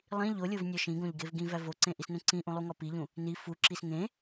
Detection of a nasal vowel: present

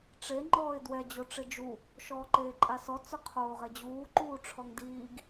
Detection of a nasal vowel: absent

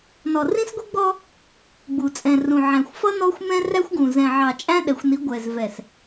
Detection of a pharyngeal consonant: present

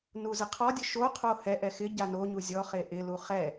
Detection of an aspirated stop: present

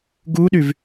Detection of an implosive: present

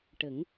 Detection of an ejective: absent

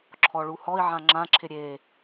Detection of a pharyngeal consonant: present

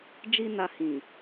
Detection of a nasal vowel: present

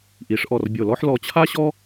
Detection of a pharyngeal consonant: present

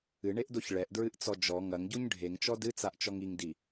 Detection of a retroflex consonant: present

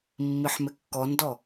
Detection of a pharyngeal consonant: present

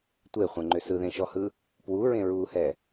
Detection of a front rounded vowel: present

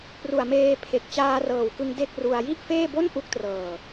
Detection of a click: absent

